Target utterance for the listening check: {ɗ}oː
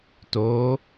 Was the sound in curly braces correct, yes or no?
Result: no